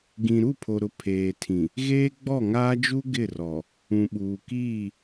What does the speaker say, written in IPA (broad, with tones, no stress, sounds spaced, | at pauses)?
ɡ ĩ˨ ɾ u˦˨ pʰ o˨ ɾ ʊ˨ pʰ eː˨ tʰ ĩ˨ | ɣ eː˦ ɡ͡b ɔ˦˨ ŋ aː˦ d͡ʒ u˦ ɡ ɪ˦˨ r ɔ˨ | ũ˨ ɓ uː˨ k iː˦˨